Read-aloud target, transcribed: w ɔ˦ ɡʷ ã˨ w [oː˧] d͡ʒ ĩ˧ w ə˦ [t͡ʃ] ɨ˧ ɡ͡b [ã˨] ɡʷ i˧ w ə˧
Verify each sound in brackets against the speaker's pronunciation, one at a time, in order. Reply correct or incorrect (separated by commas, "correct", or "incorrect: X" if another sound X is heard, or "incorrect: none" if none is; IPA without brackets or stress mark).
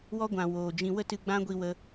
incorrect: oː˨, incorrect: t, incorrect: ã˦